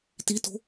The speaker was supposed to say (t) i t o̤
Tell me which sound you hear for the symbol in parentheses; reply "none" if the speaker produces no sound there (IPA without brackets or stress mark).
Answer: t